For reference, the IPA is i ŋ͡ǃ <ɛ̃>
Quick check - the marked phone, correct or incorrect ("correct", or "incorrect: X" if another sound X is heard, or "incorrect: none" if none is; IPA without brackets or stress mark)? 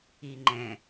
correct